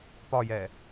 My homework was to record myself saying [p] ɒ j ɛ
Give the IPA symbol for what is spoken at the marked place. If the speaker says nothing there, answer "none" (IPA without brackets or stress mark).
p